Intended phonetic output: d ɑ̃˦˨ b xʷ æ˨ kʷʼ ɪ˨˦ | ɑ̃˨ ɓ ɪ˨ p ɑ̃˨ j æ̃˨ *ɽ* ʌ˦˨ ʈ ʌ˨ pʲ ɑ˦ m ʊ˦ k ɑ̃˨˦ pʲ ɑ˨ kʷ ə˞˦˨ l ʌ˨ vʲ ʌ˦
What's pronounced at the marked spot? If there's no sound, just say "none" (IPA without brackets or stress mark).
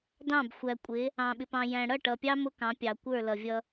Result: ɽ